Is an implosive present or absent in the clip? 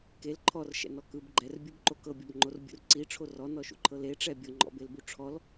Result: absent